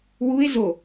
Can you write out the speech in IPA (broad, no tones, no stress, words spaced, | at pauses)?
wue̯ zo